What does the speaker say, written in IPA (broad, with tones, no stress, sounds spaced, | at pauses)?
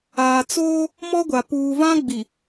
aː˨ t͡s oː˦ | m ɔ˦ ɡʷ a˨ p uː˨ v ã˦ ɡ͡b i˨